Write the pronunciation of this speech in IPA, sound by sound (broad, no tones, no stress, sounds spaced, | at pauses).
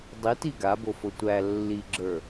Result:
dˤ i t i ɡ a b o f o tʷ æ lː i ɡ͡ǁ ə˞